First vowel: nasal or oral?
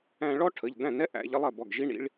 nasal